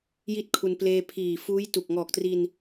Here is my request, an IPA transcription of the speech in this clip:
j i˥˩ t̚ kʰ u˧ n p l eː˧ pʰ iː˨˩ f uː˦˥ j t u˨˩ k̚ ŋ ɔː˨˩ k̚ t r i˧ n

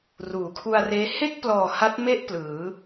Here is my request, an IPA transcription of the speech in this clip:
r uː˩˦ kʰ u˧ a̯ r eː˦˥ h e˥˩ k̚ p l ɔː˨˩ h a˦˥ t̚ m e˥˩ ʔ p l ɯː˩˦

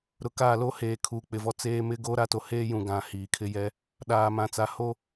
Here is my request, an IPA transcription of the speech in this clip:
ɾ ʊ˨ k aː˦˨ l o˦ h eː˨ kʰ uː˨ k͡p ɪ˨ v ɔ˦ t͡s eː˦ m ɪ˦ ɡ oː˦ ɾ a˦ t o˨ h eː˦ j ũ˨ ɡ ã˨ h iː˨ kʰ ɪ˦ j ɛ˦ | ɗ aː˨ m ã˨ t͡s a˨˦ h o˦

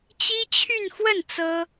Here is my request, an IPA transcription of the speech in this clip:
t͡ɕ i˥ t͡ɕʰ y˥˧ n x w ə˥˩ n t͡s ɤ˥

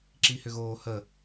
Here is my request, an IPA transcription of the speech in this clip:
ǁ i h ʏ ɣ oː h ə

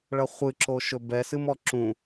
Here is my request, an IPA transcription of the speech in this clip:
ɭ ʌ χʷ ɨ ǁ o ʃ ɵ b ɛ s ɨ m ɔ ǁ ũ

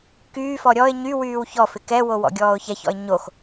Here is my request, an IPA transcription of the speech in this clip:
k yː f ɔ ɾʲ ɔ ɪ̯ ɲ y w yː w ç ɔ f ɪ k ɛ w o w ɔ̰ ɡʲ ɔː ʊ̯ ç ɛ ç ɔ̰ ɪ̯ ɲ o x

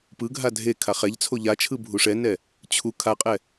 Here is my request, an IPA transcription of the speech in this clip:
p ɯ ɡʱ a dʱ e kʰ a χ ɛ ʎ t͡sʰ o ʎ a t͡ʃʰ ɯ bʱ u ʂ ɛ n ɛ | t͡ɕʰ u kʰ a qʼ ɛ

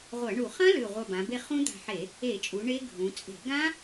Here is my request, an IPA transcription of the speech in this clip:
ʁʷ ɐ˧˩˧ ɳ u˧˩˧ χ ɐ̃˦˥ l ʉ˧˩ ʁʷ ɐ˧˩ b ã˩˧ b e˧ χ ũ˦˥ d̪ a̤˧ ħ e˧˩˧ | e˧˩˧ t͡ʃʼ u˩˧ ɳ e˦˥ ɡʱ ũ˩˧ t͡sʼ e̤˧˩˧ ɡ ã˦˥

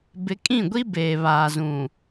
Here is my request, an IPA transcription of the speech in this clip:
b ɪ˨˦ kʼ ĩ˦˨ ɡʷ i˦ b eː˨ β aː˨ z ũ˨

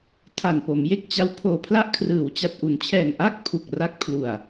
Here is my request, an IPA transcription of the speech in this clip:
tʰ a˨˩ n p o˩˦ m j e˦˥ k̚ t͡ɕ a˦˥ w pʰ oː˨˩ pʰ l a˥˩ ʔ kʰ r ɯː˩˦ w t͡ɕ a˨˩ t̚ ʔ u˩˦ n t͡ɕʰ ɛː˨˩ ŋ ʔ a˥˩ k̚ pʰ u˨˩ k̚ r a˦˥ k̚ pʰ l u˨˩ a̯

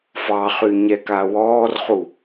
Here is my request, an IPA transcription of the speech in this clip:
f ɑ χ y ɲ ɛ k a w ɔː r χ u

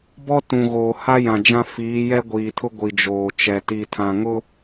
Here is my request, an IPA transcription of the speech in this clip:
b ɔ˦ t ũ˨ ɣ oː˨ h a˦ j ã˨ d͡ʒ ã˦ f iː˨˦ j ɛ˦ ɡʷ iː˨ tʰ ʊ˦ ɡʷ i˨ d͡ʒ oː˨ t͡ʃ ɛ˨ t i˨ tʰ ã˨ ŋ ʊ˦

